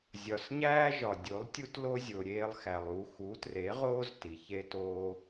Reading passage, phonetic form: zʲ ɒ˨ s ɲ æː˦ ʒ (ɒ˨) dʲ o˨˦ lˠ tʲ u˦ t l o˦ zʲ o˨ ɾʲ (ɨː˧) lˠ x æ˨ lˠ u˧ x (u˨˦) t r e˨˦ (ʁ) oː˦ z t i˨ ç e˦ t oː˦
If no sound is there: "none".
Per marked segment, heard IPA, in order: ɒ˨, eː˧, u˨˦, ʁ

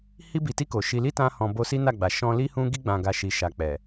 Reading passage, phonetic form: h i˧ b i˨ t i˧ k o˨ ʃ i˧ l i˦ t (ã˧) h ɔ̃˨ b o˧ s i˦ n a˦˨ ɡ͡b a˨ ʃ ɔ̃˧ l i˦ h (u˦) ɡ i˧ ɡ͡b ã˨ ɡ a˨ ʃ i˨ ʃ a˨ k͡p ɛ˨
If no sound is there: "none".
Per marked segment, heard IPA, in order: ã˧, ũ˦

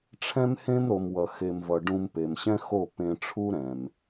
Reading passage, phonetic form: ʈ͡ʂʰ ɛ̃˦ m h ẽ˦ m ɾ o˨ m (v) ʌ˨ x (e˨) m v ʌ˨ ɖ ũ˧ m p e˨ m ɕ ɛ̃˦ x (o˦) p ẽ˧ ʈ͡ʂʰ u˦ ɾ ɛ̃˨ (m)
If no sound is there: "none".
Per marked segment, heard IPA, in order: w, e˨, o˦˨, m

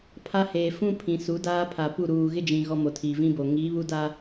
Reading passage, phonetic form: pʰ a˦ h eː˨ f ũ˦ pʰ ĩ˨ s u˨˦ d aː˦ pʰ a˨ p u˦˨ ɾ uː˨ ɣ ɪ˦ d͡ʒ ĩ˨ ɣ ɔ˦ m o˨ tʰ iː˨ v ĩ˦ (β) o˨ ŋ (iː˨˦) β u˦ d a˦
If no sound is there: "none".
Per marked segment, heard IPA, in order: b, iː˨˦

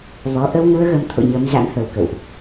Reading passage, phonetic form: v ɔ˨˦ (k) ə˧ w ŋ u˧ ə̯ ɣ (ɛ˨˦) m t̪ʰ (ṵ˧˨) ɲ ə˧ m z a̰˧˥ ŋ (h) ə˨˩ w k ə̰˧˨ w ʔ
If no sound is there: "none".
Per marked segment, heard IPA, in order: ʔ, ə˨˦, o̰˧˨, h

